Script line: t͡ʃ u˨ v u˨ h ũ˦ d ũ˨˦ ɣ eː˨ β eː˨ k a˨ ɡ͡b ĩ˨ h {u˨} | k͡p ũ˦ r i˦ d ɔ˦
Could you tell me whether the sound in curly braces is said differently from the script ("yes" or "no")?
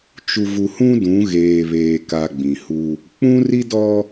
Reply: yes